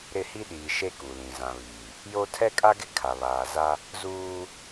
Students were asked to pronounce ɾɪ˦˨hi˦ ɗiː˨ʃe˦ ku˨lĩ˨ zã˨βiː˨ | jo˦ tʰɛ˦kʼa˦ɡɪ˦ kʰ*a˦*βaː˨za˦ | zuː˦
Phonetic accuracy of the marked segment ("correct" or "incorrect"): incorrect